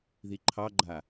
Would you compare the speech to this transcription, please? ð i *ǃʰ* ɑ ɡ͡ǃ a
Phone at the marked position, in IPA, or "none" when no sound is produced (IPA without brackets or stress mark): ǃʰ